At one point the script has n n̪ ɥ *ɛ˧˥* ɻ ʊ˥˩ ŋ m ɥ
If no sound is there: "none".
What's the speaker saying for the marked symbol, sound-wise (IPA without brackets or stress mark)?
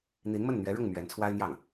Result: ɛ˧˥